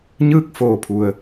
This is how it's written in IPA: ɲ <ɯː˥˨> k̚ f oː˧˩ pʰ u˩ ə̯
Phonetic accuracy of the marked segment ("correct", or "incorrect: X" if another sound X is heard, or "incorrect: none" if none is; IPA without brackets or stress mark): correct